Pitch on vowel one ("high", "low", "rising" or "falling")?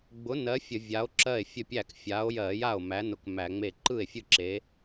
rising